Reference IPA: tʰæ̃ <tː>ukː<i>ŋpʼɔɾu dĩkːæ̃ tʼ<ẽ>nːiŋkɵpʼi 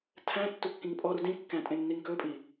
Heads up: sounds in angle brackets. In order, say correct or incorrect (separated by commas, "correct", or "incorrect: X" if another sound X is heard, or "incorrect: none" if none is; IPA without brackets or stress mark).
correct, incorrect: ĩ, correct